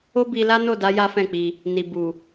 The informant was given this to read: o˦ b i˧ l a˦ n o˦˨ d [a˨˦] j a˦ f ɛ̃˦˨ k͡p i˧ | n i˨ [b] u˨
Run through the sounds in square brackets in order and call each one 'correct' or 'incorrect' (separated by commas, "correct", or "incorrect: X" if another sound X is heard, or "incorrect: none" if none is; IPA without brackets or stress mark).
correct, correct